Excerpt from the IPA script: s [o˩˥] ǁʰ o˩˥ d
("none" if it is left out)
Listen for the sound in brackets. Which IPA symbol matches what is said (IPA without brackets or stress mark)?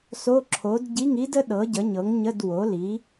o˧˥˧